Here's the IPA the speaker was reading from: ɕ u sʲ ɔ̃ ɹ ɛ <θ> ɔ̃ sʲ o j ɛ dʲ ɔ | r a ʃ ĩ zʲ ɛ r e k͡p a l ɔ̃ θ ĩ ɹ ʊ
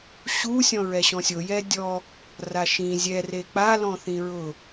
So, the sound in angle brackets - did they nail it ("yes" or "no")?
no